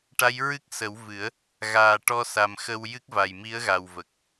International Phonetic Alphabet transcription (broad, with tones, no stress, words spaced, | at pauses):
ʈa˧˥jɹɨ˦˥k̚ sə˨˩˦wvɨ˨˩˦ə̯ | ɣaː˨˩ ʈɔ˧sa˨˩mxə˧w jɨ˦˥k̚va˨˩jmi˧˥ə̯ɣa˨˩w və˨˩k̚